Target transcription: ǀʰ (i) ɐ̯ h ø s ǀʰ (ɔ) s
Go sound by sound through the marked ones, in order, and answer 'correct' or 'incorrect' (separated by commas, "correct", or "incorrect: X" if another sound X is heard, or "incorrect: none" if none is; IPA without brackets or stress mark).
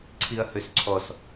correct, correct